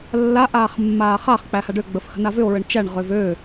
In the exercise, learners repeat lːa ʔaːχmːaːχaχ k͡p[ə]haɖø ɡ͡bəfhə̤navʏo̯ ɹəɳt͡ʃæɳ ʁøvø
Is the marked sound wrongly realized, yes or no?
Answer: yes